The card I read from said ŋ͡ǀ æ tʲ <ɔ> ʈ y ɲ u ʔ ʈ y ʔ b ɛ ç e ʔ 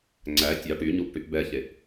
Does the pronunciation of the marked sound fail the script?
yes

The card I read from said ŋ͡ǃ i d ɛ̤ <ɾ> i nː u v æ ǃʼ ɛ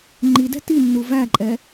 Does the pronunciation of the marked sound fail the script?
yes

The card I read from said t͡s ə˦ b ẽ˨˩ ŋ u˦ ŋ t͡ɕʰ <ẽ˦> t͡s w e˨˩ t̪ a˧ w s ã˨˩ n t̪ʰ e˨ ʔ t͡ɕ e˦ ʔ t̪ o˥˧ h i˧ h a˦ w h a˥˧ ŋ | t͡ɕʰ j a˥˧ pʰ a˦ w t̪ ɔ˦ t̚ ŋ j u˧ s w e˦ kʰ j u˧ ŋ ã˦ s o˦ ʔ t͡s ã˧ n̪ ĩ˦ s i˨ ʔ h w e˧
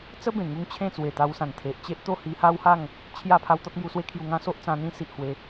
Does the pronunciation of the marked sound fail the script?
yes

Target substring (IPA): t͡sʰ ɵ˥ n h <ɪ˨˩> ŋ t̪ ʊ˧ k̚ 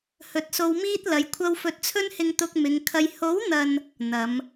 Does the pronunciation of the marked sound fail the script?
yes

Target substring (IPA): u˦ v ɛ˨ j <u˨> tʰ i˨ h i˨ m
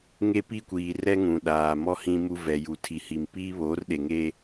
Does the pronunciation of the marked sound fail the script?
no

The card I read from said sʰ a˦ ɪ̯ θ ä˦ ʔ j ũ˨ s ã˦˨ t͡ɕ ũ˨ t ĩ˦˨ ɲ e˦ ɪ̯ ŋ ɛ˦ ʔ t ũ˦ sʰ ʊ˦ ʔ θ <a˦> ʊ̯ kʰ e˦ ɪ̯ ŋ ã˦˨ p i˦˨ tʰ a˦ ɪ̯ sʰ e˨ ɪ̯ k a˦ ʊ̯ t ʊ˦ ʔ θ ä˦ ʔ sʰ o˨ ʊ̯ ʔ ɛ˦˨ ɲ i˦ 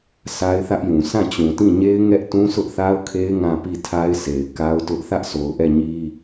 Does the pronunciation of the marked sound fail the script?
no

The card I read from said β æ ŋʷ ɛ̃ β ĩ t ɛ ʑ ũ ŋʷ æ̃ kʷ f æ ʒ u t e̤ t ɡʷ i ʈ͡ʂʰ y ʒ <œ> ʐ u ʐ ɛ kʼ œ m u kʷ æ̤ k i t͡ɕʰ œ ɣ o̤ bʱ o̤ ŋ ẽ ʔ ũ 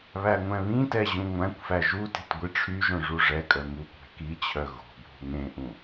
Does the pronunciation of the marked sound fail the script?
yes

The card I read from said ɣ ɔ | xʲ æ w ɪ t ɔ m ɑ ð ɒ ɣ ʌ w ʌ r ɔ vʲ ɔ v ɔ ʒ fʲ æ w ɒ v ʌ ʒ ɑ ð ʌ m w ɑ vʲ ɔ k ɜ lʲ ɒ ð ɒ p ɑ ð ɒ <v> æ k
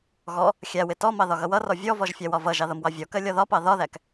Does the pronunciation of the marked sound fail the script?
yes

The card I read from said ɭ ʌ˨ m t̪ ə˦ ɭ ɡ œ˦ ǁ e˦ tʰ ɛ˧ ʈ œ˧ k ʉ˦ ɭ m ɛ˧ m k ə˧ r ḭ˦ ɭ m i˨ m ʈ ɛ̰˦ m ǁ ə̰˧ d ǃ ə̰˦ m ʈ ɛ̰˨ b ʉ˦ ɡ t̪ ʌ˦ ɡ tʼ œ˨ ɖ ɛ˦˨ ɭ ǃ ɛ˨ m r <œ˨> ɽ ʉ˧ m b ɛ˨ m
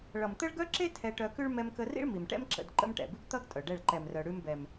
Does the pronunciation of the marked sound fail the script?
no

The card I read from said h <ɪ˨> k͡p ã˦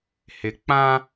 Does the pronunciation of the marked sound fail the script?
no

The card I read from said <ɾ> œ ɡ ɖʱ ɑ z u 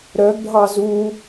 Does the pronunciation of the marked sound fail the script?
no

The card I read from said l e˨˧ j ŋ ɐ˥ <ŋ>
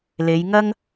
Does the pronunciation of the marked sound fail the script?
no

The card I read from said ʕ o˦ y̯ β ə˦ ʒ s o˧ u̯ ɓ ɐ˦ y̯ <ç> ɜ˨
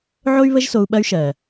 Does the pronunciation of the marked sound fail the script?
yes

